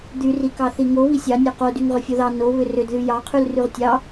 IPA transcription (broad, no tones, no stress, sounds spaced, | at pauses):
d̪ y r i k ɑ θ i ŋ o β i sʲ ɑ nʲ o q o d y ŋ ʁ ʏ fʲ o ð ɑ n o β ʏ r ʏ d ð y j ɑ qʰ y l r y ʁ tʲ ɑ